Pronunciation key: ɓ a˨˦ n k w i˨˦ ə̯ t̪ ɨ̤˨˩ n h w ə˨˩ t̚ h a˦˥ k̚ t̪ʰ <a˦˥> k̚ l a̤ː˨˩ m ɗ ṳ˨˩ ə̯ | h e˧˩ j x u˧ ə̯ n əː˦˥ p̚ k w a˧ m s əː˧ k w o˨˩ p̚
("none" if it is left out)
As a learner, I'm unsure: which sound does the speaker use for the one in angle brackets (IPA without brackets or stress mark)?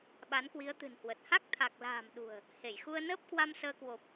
a˨˩